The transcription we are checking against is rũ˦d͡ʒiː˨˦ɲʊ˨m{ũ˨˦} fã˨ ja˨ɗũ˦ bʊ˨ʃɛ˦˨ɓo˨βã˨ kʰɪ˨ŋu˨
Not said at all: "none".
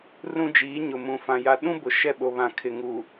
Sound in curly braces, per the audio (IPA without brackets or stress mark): ũ˨